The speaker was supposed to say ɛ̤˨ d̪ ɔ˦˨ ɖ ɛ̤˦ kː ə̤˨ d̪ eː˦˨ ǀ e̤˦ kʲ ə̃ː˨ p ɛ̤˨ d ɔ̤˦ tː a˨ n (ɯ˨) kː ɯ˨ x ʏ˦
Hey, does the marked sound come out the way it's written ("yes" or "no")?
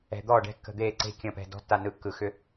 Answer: yes